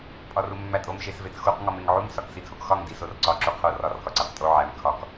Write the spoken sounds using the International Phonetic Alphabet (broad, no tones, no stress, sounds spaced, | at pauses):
pʼ ɒ r u mː æ tʼ o m ʃ e s v e t x u q ŋ ɒ m e ŋ ʕ u m s ɒ k s i tʰ o k x ɒ ŋ d i s o r ǀ ɒ ǁ u qʰ o r ɒ r k ɒ ǀ æ q tʼ o ʕ æ m kʰ ɒ k